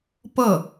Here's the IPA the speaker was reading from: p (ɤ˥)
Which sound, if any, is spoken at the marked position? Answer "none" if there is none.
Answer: ɤ˥˩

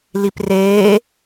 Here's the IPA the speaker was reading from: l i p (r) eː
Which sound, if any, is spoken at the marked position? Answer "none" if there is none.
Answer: r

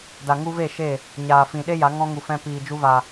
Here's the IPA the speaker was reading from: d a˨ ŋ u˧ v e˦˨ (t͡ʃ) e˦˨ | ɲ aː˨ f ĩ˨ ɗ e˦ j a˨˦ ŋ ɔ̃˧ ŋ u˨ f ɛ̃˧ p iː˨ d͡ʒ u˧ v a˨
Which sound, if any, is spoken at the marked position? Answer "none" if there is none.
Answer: ʃ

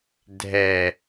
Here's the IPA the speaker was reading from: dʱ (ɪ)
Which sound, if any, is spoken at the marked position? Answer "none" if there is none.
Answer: ɛ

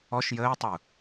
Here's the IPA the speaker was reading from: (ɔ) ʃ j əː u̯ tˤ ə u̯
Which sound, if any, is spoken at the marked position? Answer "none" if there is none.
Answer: ɔ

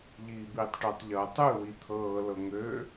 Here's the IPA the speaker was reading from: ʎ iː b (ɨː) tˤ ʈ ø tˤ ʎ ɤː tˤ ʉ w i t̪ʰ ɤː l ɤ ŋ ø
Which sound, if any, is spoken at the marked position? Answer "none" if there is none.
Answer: iː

